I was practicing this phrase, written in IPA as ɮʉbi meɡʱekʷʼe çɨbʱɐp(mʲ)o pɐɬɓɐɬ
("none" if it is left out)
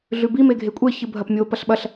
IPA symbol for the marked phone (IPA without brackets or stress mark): mʲ